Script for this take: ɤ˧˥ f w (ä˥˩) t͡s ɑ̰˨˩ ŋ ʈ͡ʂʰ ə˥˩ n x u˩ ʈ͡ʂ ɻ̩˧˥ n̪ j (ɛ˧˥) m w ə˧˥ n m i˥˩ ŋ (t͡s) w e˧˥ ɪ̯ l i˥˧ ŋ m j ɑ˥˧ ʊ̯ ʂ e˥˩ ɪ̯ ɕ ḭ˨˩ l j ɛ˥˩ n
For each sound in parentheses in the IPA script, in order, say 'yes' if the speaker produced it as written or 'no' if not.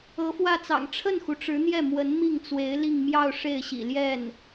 yes, no, yes

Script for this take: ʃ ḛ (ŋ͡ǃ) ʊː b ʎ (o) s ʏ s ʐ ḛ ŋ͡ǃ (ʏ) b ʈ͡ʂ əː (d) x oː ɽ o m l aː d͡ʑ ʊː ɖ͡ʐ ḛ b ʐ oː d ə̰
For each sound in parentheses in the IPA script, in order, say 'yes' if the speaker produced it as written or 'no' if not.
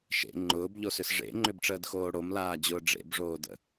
yes, yes, yes, yes

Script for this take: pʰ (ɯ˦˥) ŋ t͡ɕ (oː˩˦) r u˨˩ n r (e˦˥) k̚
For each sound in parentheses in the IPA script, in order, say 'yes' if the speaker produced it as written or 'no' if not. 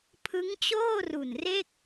yes, no, no

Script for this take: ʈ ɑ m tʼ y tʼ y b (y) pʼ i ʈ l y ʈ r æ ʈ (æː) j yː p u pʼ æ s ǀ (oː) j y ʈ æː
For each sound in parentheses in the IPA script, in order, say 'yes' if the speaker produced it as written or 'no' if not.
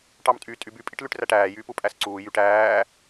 yes, yes, no

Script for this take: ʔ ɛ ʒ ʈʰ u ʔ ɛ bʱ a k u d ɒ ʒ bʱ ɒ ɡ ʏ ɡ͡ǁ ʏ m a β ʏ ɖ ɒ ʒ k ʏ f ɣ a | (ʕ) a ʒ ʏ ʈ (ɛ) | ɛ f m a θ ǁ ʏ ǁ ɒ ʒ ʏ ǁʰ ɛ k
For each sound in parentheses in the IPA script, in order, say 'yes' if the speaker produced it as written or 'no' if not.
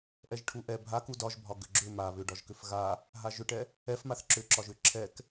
no, yes

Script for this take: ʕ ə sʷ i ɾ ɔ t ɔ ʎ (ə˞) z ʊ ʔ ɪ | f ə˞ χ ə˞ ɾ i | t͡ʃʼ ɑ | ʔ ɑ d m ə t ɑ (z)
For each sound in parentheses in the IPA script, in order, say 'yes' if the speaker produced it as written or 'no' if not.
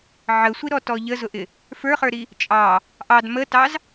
no, yes

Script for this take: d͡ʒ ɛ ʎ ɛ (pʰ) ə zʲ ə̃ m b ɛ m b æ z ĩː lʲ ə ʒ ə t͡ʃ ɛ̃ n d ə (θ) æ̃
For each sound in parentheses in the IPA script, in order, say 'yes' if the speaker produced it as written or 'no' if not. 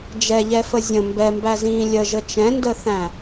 no, yes

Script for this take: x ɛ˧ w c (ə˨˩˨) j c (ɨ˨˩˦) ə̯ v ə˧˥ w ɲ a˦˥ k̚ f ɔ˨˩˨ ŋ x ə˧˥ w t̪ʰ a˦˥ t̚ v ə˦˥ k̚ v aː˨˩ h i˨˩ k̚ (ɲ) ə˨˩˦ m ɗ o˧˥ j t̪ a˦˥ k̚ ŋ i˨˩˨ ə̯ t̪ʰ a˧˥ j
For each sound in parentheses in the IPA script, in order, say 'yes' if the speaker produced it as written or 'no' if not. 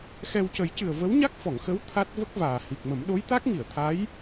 no, no, no

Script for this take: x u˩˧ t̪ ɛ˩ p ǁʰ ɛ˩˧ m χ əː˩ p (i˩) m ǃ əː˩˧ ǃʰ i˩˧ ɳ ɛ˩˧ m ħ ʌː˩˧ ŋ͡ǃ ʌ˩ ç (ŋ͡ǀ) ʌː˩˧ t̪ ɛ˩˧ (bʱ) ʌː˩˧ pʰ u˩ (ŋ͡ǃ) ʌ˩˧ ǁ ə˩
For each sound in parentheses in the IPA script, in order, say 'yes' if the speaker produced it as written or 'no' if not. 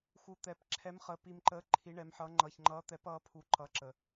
yes, no, no, no

